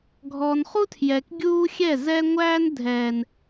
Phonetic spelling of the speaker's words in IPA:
ɡʱ ɔː˨ n χ u˦ tʰ j ɛː˨ k ɡʲ uː˦ xʲ ɛ˦˨ z ɛ˦ ŋʷ æː˦ n dʱ ɛː˨ n

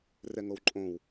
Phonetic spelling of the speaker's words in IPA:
r ɛ ŋ o w ǃʼ õ w

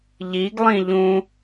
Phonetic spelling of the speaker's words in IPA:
ʎ i ɡ lˠ ĩ ʎ ũ

